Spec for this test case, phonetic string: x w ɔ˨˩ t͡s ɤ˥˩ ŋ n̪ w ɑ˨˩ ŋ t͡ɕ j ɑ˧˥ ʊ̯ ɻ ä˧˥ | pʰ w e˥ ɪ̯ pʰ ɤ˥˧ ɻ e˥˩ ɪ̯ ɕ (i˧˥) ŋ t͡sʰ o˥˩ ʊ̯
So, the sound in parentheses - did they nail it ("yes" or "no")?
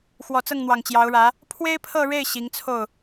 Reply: yes